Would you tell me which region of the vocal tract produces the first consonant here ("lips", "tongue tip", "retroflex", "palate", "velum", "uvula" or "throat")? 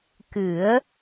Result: velum